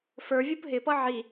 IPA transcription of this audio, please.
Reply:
f ə˞ vʲ u p ɦ ɪ p ʌ ʕ i

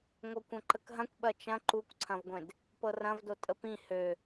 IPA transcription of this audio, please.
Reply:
ŋʷ ɤ kʷ ɐ̃ ǃ ə k ɦ ɐ̃ kʷ ɓ ɐ t͡ʃ ɐ̃ ǃ u kʷ ǀʰ ɐ̃ v ɡʷ ẽ d | p ɤ r ɐ̃ v d o tʼ ə p ĩ h ø

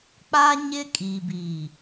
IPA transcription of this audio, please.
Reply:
k͡p a˦ ɲ ɪ˦ kʼ i˨ b iː˨

